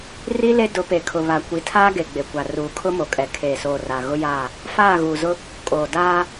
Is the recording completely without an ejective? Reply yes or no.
no